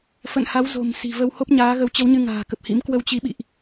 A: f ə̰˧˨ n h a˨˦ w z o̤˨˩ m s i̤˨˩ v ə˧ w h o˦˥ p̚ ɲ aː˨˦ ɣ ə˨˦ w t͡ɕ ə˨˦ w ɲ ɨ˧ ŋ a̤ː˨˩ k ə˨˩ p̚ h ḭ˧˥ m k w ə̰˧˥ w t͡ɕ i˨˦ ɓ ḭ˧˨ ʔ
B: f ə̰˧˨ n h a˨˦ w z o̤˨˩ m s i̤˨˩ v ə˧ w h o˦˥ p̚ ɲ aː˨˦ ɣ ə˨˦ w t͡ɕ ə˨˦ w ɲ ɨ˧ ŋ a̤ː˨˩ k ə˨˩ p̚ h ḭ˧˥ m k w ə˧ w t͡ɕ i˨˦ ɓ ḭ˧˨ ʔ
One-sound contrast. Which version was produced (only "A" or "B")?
B